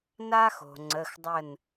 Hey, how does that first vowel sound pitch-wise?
high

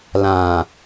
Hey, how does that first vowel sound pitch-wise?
low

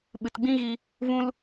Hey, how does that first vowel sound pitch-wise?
low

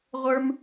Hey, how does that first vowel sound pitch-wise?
high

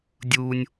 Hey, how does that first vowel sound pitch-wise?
low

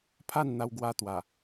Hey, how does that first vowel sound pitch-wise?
falling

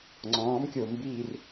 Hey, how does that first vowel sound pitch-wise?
rising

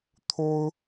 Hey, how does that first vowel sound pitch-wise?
high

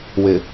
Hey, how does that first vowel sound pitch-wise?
low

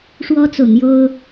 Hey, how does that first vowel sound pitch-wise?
high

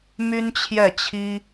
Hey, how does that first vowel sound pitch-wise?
high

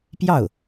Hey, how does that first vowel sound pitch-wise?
falling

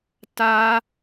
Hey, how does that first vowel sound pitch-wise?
high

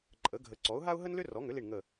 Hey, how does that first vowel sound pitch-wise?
rising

